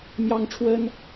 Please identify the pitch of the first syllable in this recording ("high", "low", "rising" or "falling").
high